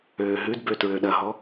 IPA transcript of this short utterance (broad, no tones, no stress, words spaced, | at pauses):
øːɦʉdbø tɹøɗɐɦɔ